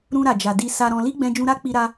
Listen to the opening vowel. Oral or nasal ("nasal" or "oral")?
nasal